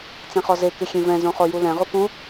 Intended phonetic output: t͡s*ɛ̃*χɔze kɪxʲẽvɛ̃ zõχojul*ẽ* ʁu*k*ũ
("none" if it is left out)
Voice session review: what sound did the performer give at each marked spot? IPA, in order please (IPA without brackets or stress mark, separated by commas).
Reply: ɛ̃, ɛ̃, k